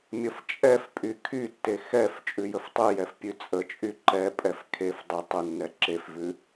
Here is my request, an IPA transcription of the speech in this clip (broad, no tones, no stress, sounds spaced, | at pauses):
mʲ ə f t͡ʃʼ ɛ f pʼ y kʰ y tː e x ɛ f t͡ʃʼ ʉ j ə f tˤ ʉ j ɛ f pʲ ʉ t͡sʼ ə t͡ʃʼ y ǃ ɛ pʼ ɛ f kʰ e f dˤ ə tˤ ə nː ɛ ǁ e f v ʉ